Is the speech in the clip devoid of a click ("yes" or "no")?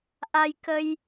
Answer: yes